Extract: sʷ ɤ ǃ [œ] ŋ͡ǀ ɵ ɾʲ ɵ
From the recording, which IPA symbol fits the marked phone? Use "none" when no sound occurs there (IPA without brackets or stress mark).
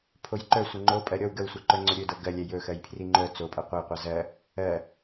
œ